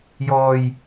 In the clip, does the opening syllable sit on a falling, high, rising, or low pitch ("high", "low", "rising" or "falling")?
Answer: low